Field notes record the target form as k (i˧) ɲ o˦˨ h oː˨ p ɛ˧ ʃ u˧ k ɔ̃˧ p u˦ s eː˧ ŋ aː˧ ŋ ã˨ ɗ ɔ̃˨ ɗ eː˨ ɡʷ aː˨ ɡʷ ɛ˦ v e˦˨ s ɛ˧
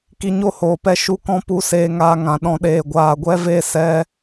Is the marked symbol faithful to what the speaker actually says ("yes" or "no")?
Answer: yes